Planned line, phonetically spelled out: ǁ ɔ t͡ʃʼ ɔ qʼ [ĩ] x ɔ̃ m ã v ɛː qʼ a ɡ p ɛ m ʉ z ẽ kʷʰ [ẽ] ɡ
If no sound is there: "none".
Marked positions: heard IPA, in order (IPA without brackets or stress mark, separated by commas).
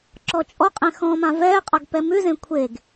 ẽ, e